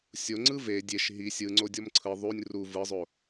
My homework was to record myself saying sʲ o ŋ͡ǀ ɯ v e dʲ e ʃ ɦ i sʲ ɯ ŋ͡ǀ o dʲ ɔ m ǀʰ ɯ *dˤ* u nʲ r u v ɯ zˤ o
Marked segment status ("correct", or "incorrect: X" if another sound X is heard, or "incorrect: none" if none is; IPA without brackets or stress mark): incorrect: ðˤ